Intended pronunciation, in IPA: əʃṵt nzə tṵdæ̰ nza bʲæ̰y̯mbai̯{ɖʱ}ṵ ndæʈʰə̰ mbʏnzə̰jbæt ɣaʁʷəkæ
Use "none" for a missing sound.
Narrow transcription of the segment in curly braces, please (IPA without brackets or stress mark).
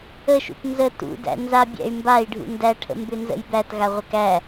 ɖʱ